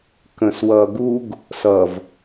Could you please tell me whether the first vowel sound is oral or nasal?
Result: nasal